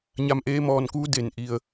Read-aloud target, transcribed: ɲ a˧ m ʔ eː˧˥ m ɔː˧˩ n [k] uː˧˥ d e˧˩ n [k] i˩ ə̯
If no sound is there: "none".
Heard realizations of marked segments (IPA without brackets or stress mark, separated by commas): k, ʔ